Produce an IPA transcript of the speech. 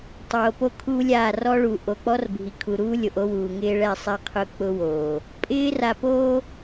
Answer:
tˤ oː˨ p o˦ kʰ uː˦ lʲ aː˦˨ r ɔ˦ ɭ u˨ ʔ o˨ k͡p ɔ˦ r bʱ i˨ kʰ u˨ ɾ uː˦ lʲ o˨ ʔ o˦ w uː˨ ŋ ɪː˦ ɭ ɛ˦˨ sˤ ɛ˦ qʰ ʊ˦ k͡p ʊ˦ w oː˨ | pʼ ɪː˦ r a˨ p oː˦

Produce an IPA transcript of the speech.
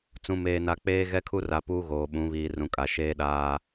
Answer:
t͡s ũ˨ m eː˨ n a˨ k͡p eː˦ ɣ ɛ˦ kʰ u˦ r a˨ p uː˦ ɣ oː˨ ɓ ũ˨˦ β iː˨ r ũ˨ kʼ a˨ ʃ eː˦ ɗ aː˦

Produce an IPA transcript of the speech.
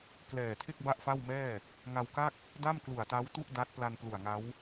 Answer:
k l ɛː˨˩ tʰ e˥˩ k̚ b a˥˩ ʔ f a˥˩ w m ɛː˥˩ | ŋ a˧ w k a˥˩ k̚ | d a˥˩ m k l u˨˩ a̯ t a˦˥ w t u˥˩ ʔ d a˦˥ t̚ p l a˧ n p l u˨˩ a̯ ŋ a˦˥ w

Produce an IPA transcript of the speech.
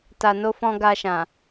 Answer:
t a˨ n o˧ f ɔ̃˧ ɡ a˧ ʃ ã˨

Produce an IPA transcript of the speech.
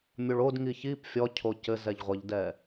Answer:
mʲ o ɭ o d ŋ i ç i p fʲ ɔ cʰ o c ɘ z ɛ ʎ ʁʷ ɘ ʎ d ɛ

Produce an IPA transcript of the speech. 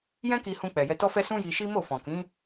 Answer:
j ɛ̃˦ k i˧ h ũ˧ k͡p ɛ˨ j ɛ˧ t ɔ˦ f ɛ˦ s ũ˦ j i˧ ʃ i˦ m o˦˨ f ɔ̃˨ k ĩ˨˦

